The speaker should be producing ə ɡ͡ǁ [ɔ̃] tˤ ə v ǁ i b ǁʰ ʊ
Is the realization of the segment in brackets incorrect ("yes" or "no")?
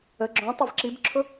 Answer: no